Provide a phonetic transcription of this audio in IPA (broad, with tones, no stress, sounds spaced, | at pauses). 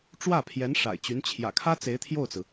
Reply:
ʈ͡ʂ w ä˥˩ pʰ j ɛ˧˥ n ʂ a̰˨˩ ɪ̯ t͡ɕ y˧˥ n t͡ɕʰ j ä̰˨˩ kʰ ä˥ t͡s e˧˥ ɪ̯ t̪ʰ j o˥˩ ʊ̯ t͡s ɹ̩˩